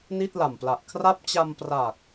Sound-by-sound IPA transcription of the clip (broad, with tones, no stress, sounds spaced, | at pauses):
n i˥˩ t̚ l a˨˩ m p l a˨˩ ʔ kʰ r a˥˩ p̚ t͡ɕ a˧ m p r a˨˩ k̚